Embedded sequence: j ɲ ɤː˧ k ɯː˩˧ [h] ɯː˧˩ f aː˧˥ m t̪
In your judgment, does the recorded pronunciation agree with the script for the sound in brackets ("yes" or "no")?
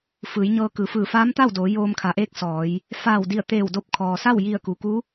no